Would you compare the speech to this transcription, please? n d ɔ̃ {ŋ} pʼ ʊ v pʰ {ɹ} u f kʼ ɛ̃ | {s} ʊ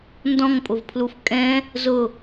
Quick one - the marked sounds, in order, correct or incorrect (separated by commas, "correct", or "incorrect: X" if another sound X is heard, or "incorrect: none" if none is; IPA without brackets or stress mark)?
correct, incorrect: l, incorrect: z